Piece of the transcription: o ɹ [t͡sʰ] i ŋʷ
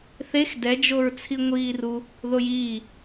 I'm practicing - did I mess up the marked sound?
no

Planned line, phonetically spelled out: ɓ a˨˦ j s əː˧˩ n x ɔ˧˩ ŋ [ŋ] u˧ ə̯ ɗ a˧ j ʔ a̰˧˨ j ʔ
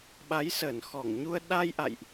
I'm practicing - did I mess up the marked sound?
yes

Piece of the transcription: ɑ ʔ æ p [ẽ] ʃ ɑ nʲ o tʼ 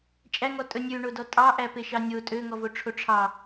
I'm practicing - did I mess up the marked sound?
yes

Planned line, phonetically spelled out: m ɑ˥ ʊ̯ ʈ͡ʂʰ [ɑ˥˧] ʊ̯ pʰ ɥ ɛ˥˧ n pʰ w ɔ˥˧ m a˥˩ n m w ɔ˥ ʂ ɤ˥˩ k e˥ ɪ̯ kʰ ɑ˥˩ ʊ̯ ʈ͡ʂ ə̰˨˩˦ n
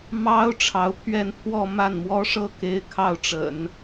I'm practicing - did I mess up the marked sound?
yes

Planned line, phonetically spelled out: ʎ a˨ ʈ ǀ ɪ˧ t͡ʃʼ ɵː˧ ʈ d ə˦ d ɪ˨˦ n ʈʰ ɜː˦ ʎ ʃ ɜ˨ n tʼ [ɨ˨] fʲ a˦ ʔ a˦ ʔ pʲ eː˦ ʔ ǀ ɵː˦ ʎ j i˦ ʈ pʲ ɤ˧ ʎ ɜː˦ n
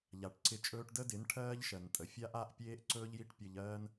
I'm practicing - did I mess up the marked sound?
yes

